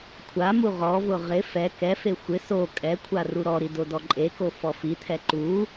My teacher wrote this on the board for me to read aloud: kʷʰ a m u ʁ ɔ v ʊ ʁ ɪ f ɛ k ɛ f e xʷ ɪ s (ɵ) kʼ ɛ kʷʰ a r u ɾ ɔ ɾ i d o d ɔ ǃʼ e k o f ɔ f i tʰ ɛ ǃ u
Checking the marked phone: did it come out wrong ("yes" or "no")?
yes